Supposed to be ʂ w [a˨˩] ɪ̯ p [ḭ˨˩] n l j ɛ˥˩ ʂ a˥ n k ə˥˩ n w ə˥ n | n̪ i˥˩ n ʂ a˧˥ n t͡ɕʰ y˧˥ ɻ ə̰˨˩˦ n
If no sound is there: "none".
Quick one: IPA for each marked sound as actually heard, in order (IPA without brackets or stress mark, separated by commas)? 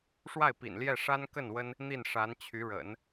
a˥˩, ḭ˨˩